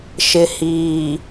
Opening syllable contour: low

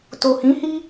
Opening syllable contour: low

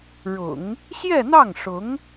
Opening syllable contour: low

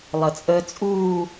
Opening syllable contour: low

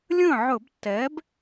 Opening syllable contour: falling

